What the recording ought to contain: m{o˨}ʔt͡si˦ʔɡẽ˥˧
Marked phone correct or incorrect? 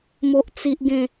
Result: incorrect